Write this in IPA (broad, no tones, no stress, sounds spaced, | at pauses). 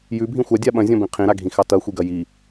j ʉ bʱ ĩ xʷ a dʲ a ɓ ɐ̃ zʲ ɔ̃ b ĩ qʰ ĩ ɾ a ɡʱ ĩ x ɑ t ɐ xʷ i ɡ ɐ j i